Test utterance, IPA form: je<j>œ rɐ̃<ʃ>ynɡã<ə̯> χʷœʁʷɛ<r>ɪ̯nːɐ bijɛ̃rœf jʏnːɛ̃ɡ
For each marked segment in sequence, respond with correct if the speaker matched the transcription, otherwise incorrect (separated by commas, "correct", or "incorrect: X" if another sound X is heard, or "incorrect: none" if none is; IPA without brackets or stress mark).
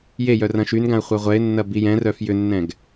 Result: correct, correct, correct, incorrect: none